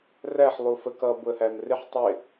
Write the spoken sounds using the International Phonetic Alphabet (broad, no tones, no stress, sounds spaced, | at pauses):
r æ ħ lˠ u f ə k ʌ b ʊ ə̯ h æ m r ɪ ħ tˤ ɪ